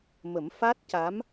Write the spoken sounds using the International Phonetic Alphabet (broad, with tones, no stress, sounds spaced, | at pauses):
m ə˨˩˦ m f a˦˥ t̚ c a˧˥ m